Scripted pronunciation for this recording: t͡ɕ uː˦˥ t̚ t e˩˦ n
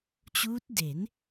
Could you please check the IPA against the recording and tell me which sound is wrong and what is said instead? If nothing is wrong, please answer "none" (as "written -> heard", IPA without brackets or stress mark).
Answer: t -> d